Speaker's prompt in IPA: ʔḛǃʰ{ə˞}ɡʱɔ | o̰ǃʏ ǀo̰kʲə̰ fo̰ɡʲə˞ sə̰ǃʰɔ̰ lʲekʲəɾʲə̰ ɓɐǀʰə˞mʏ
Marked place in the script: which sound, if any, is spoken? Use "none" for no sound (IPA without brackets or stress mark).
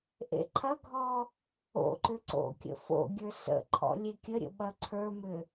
ɐ